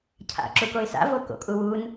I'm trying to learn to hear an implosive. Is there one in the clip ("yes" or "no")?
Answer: no